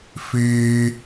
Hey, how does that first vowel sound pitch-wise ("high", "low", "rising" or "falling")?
high